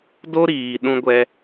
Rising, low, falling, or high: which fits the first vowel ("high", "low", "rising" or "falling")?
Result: high